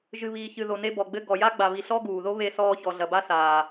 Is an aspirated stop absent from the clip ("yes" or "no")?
yes